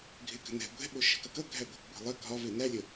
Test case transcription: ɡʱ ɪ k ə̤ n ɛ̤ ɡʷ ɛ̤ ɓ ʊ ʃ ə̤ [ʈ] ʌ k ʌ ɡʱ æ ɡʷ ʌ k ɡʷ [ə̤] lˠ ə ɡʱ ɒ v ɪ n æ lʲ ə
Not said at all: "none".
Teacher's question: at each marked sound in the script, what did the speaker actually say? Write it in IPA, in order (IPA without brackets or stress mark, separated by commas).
k, ɛ̤